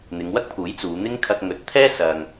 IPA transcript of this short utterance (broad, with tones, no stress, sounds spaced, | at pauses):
n̪ ɪ˨˧ ŋ w ɐ˥ k̚ pʰ uː˨˥ j t͡s uː˨˧ n̪ ɪ˥ ŋ kʰ ɐ˧ k̚ ŋ ɵ˨˥ t̚ t̪ʰ ɛː˥ s ɐ˥ ŋ